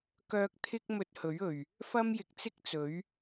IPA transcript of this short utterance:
k œː˧ k̚ t̪ʰ ɪ˥ k̚ m ɵ˧ t̚ h ɵ˨˥ ɥ ɵ˨˩ ɥ | f ɐ˥ m j ɪ˨ k̚ t͡s ɪ˥ k̚ t͡s ɵ˨˥ ɥ

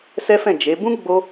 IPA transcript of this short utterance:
s ɛ˦ f ɛ̃˦˨ d͡ʒ e˨˦ b ũ˦ ɡ͡b o˦

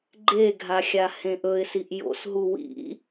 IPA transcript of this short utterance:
ɡ͡ǃ e ɡʱ a xʲ a h ẽ ʔ ɵ ɪ̯ s i ʔ j o̰ s ɦ u w ḭ

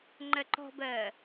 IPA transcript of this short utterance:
ŋ͡ǃ ɜ ǃ ɔ̤ b ɜː

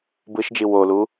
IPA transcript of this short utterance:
b ɯ ʃ d͡ʒ i w o l u

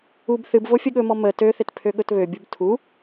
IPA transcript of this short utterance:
u b θ ɨ b v o fʲ ə ɠ ɵ m ɔ m ə t ø θ ɪ t pʰ ø ɠ ɵ t β ø bʲ u b tʰ u

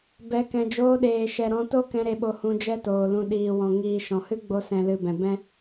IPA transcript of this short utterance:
b ɛ˨˦ k ɛ̃˨ d͡ʒ oː˧ ɗ eː˨ ʃ ɛ˨ ɾ ɔ̃˧ t o˦ k ɛ̃˧ ɾ e˧ ɓ o˧ h ũ˧ d͡ʒ ɛ˦ t oː˨ l ũ˨ ɗ iː˨ w ɔ̃˨ ŋ iː˨ ʃ ɔ̃˨ h ɨ˦ ɡ͡b o˧ s ɛ̃˨ l ɨ˨ b ɛ̃˨ b ɛ̃˦

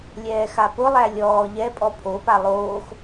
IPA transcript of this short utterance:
lʲ ɛː x a p ʊ lˠ æ lʲ ɔː ʎ ɛ pʼ ɔ pʰ o p a lˠ oː x

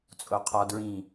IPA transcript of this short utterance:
t͡sʼ o qʰ ɒ d ɹ ĩ

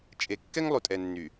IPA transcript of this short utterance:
t͡ʃʼ e˨ kː ɛ˦ ŋ lˠ u˨ tʼ ɛ˨ nː y˨

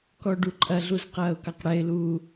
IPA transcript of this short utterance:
k ɔ ɖ u ǃʼ ɐ ɮ u z q ɐː ʊ̯ k ɑ q ɽ ɛ ɪ̯ l uː

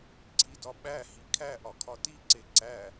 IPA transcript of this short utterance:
ǀʰ i d ɒ ɓ æ h i kʰ æ ʔ ɒ kʰ ɒ t i ǀ e ǀ æ

